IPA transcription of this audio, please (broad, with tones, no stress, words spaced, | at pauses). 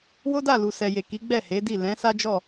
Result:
wo˦da˦˨lu˨ sɛ˨je˨ki˨˦ ɡ͡bɛ˦˨he˨˦di˦˨ lɛ̃˨˦ sa˦d͡ʒɔ˦˨